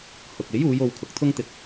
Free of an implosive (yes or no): yes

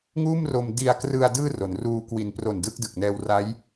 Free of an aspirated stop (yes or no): yes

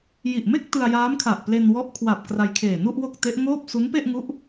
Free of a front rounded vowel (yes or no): yes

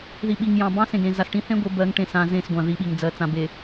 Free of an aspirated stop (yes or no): yes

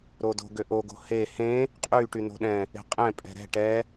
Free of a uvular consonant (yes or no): no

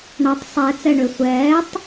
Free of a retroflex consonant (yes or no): no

